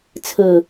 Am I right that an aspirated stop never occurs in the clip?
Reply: no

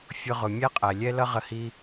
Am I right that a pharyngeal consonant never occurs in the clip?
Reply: yes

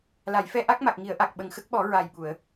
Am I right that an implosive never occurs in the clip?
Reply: no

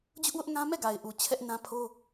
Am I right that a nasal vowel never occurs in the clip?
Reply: no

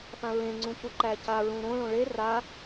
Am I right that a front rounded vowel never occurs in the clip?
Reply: yes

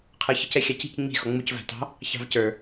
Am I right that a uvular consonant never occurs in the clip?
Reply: no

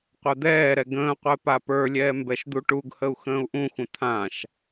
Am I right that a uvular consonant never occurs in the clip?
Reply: no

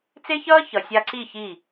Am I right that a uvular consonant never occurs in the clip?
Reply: yes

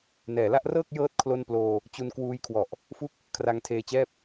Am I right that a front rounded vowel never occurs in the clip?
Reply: yes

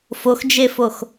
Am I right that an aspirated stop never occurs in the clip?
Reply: yes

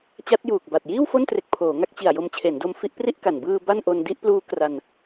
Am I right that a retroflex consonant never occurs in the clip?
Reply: yes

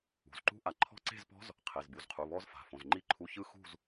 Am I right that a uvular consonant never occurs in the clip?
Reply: no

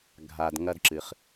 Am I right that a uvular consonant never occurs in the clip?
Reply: no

